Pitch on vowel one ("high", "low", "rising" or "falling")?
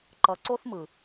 low